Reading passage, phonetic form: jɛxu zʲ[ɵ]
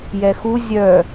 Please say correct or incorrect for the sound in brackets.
incorrect